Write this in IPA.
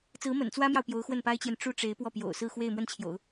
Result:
t͡s ɹ̩˧˥ m ə̰˨˩ n t͡s w ä˥ m j ɑ˨ ʊ̯ p j o˧˥ ʊ̯ x w ə˥˩ n p a˥ ɪ̯ t͡ɕ j ɛ˨ n ʈ͡ʂ u˥ ʈ͡ʂ e˧˥ ɪ̯ p w ɔ˥˩ p j o̰˨˩ ʊ̯ s ɹ̩˥˧ x w e˥˧ ɪ̯ m w ə˥˩ n t͡ɕʰ j o̰˨˩˦ ʊ̯

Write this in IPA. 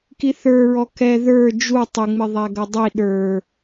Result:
k i θ ə˞ ɹ ɔ k ɛ ð ə˞ d͡ʒ u tˤ ɪ ŋ͡m ɪ ðˤ æ ɡ ʌ dˤ i ɗ ə˞

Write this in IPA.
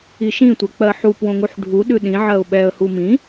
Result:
i ʃ ĩ tʷ ɛ k͡p ɜ ħ u p w õ ŋ u ħ ɖʱ u ɗ ʉ ɗ ĩ ʕ ɜ ʊ̯ ɓ ɛ ə̯ h u m ĩ

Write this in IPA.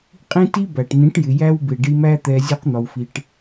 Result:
qʼ ĩ˦ t i˦ b æ˨ ʈ n ĩ˨˦ ʈ j ɪ˨ j æ˦ w b ɪ˨ ɖ i˧ m æ˦ t̪ ɛ˧ zʲ u˧ q n̪ ɒ˨ w f i˨ ʈ

